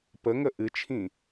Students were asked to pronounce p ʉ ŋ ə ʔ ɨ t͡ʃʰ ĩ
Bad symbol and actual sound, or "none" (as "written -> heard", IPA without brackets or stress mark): ʉ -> ə